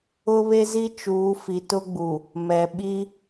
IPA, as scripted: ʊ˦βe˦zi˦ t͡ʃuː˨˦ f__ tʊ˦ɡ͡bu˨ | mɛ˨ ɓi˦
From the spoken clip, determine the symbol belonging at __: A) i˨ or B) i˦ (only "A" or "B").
A